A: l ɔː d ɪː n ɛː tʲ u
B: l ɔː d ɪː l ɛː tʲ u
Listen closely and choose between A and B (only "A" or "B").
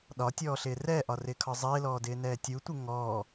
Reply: A